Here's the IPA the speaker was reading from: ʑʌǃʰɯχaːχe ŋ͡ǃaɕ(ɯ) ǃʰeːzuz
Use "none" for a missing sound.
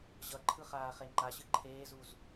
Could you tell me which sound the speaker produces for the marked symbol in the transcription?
ɯ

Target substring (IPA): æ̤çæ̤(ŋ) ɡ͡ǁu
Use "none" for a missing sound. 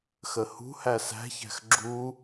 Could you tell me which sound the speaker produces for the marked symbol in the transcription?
x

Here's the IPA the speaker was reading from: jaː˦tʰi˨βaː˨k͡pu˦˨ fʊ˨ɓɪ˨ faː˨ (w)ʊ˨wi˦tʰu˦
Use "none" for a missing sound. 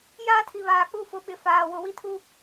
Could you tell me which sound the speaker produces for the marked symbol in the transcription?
w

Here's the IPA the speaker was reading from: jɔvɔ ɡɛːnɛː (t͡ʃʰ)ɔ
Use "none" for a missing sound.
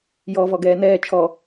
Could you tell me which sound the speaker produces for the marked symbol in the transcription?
t͡ʃʰ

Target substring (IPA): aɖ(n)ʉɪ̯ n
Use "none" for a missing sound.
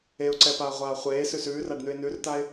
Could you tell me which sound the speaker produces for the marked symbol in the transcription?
n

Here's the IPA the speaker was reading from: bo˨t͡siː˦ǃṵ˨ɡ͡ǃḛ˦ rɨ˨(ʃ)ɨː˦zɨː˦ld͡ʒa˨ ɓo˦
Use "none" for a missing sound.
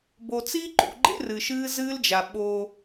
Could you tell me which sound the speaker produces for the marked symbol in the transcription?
ʃ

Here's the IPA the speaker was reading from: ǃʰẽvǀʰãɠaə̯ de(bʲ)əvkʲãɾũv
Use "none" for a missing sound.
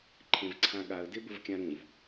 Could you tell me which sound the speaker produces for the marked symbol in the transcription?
b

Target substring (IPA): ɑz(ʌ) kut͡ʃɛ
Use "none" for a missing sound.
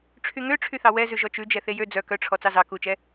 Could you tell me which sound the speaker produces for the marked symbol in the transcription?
ɑ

